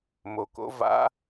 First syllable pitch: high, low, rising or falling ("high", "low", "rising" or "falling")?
low